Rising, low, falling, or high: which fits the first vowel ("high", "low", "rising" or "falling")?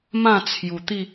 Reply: falling